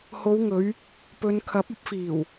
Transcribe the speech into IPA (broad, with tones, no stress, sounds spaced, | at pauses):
h o˨˧ w ŋ ɵ˨˧ ɥ | p ɵ˨˧ n kʰ ɐ˨˥ p̚ ɐ˧ p̚ f iː˨˩ w